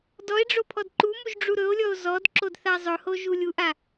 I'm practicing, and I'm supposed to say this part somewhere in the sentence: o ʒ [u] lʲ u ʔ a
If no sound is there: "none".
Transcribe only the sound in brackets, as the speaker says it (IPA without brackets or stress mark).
u